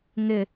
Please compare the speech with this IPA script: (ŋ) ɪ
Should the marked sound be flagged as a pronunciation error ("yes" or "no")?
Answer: no